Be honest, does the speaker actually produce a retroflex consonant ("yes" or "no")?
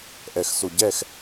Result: no